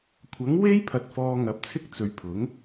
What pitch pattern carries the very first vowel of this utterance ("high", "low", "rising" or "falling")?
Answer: rising